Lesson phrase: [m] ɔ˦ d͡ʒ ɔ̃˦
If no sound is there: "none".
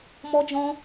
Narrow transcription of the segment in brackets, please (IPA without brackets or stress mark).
m